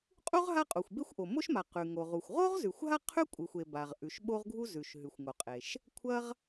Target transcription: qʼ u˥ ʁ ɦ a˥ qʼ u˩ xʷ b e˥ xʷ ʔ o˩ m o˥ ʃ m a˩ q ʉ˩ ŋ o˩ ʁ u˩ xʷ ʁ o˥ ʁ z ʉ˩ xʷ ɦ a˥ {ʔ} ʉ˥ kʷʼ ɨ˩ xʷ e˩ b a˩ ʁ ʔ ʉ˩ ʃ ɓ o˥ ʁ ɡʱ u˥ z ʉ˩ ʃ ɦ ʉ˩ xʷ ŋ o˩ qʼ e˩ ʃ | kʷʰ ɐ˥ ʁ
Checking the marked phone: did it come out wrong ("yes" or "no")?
yes